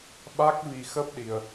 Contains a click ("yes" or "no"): no